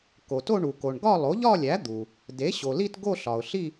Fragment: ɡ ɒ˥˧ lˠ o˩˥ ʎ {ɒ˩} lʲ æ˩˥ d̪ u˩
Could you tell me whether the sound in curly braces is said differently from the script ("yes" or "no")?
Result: yes